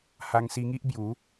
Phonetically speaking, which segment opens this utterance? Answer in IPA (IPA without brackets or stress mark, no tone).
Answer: h